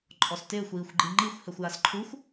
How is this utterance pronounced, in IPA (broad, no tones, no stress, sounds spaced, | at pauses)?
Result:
ǃʼ ɔ s t ɪː xʷ iː xʷ ɡ͡ǃ i ŋ͡ǃ i xʷ h ɛ xʷ j a s ǃʰ u xʷ